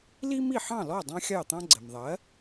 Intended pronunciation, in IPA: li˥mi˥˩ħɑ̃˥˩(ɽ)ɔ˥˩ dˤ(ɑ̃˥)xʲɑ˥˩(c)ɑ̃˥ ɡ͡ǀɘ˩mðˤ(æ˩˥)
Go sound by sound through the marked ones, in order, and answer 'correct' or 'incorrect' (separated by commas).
incorrect, correct, incorrect, incorrect